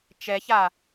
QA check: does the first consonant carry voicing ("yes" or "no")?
no